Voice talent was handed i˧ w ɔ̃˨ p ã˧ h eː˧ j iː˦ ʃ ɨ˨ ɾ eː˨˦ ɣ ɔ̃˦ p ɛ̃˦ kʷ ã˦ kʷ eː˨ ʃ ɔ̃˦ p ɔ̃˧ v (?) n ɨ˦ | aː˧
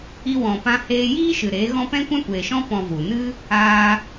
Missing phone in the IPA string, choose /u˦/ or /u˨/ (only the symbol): u˨